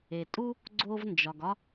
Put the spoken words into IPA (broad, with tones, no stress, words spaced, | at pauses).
e˩tʼu˥ | ɡ͡ǀo˥v nd͡ʒɒ˩ɡ ɒ˥